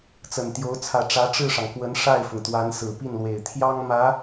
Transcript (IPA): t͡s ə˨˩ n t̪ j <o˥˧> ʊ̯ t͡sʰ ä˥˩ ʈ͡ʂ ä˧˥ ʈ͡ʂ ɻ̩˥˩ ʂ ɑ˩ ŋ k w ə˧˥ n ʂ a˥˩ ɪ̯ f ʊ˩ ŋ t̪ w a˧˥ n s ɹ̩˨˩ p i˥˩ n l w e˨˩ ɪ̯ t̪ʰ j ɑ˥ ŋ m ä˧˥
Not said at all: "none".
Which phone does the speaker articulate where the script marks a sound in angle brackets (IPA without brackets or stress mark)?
o˧˥